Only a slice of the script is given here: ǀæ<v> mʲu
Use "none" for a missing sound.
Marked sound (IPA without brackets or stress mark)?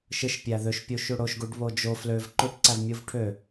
v